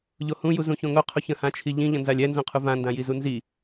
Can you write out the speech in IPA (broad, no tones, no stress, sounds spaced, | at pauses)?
ʎ o h ũ j u z ũ ç õ ŋ o qʰ o ç ə̃ h ã t͡ʃʰ i ʎ ĩ ʎ ə̃ n z a lʲ ɛ n z õ qʰ u v ã n d ã j i z u n z i